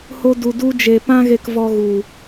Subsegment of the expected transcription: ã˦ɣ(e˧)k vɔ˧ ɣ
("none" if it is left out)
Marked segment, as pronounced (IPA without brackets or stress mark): e˧